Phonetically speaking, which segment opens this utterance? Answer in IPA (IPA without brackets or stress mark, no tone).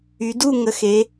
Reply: y